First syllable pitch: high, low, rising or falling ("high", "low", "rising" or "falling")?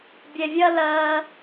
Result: low